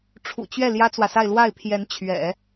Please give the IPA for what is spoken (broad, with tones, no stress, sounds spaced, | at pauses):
ʈ͡ʂʰ ṵ˨˩ t͡ɕ ɥ ɛ˥˩ l j ä˥ t͡s w ä˨ s a˥˧ ɪ̯ l w a˥˩ ɪ̯ pʰ j ɛ˧˥ n t͡ɕʰ ɥ ɛ̰˨˩˦